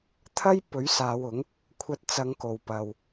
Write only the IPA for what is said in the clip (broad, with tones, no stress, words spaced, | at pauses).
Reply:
t̪ʰɐ˥jpɵ˨˥ɥ saː˨˧wʊ˨˥ŋ | kʷʰɐ˧t̚t͡sɐ˨˧ŋko˨˩w pɐ˨w